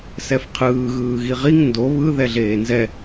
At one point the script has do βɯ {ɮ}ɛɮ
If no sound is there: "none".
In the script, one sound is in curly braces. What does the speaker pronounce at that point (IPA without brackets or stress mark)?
ð